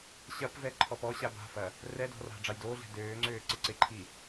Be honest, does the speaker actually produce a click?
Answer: yes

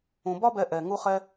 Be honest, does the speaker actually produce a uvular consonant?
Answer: yes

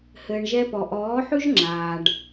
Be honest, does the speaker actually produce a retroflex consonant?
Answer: yes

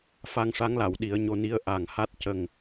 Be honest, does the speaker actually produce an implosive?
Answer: yes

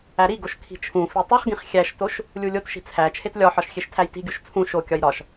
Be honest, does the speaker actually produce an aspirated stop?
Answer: yes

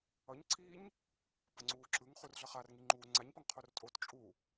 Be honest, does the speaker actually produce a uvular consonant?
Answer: yes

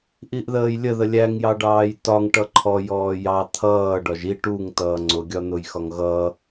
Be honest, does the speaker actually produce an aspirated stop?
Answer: yes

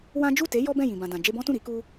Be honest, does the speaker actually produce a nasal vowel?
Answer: yes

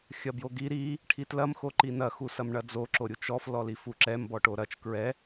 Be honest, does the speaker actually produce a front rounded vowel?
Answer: no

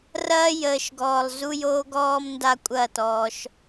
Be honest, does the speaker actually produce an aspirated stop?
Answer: no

